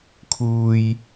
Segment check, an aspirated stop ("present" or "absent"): present